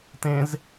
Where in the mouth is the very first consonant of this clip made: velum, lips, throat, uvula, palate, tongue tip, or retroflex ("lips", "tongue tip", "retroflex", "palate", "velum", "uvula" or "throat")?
tongue tip